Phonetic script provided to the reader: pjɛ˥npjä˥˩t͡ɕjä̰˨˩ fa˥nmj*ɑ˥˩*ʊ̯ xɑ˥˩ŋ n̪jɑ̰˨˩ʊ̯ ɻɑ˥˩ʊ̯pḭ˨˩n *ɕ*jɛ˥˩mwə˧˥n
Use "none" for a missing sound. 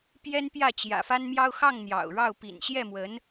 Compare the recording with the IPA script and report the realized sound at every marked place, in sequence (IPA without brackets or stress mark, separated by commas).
ɑ˥, ɕ